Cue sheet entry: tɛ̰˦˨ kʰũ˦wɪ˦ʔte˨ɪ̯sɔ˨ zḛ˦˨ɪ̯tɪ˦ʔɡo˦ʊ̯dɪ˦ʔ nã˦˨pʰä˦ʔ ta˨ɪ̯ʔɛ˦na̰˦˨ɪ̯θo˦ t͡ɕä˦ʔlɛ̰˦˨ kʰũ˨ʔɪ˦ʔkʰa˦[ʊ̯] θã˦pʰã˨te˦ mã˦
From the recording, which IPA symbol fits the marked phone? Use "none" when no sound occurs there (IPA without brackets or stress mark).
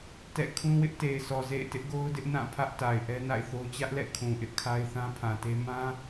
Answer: ɪ̯